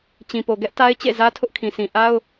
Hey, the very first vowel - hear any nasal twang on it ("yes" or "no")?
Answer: yes